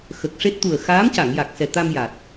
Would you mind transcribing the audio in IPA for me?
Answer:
x ə˨˩ k̚ ʂ e˦˥ t̚ t̪ u˨˩ ə̯ x aː˧˥ m c a˨˩˨ ŋ j a˨˩ k̚ s ɛ˨˩ t̪ a˧ m j a˨˩ t̚

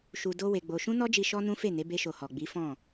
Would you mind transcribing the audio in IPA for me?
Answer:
ʃ u˧ d o˦ w e˧ ɡ͡b o˧ ʃ ũ˦ n ɔ˦ d͡ʒ i˧ ʃ ɔ˦ n ũ˦ f e˦˨ n e˨˦ b e˦ ʃ o˧ h ɔ˨ ɡ͡b i˨˦ f ɔ̃˦˨

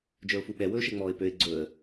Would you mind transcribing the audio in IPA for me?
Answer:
d͡ʒ ə˞ ʊ̯ f u ɓ ɛ w ɵː ʃ ɛ ŋ͡m ɔː ɪ̯ p ø ɪ̯ ɡ͡ǀ ɵː ə̯

